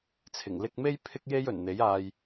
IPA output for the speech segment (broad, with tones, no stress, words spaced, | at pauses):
t͡sʰɪ˨˩ŋ lɪ˧k̚me˥j pʰɪ˥k̚je˥j ɵ˨˩nn̪e˨˥jaː˧j